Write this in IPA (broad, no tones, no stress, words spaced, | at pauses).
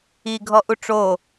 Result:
iɡʱɔʔu ʈ͡ʂo